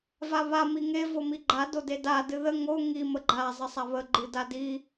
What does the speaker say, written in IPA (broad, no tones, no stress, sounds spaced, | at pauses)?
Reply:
v a β a m i ŋ e v o m i ɡ͡ǃ a d o d e d a d ɨ ð ə ŋ o ŋ i m ə ɡ͡ǃ a zˤ ə sˤ a β ə ɡ͡ǃ ɨ d a d i